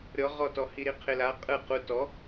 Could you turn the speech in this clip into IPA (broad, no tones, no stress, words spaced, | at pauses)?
ɾʲɔʁɔtɔ hiɾiqʰɪla qʼɯ qu tɔ